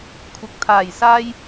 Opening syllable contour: rising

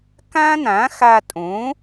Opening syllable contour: high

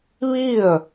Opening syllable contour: falling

